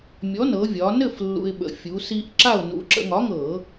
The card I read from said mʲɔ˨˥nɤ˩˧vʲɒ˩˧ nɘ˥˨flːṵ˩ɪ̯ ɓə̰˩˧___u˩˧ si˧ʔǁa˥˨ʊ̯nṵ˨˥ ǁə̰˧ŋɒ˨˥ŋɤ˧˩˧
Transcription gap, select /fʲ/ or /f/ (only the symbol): fʲ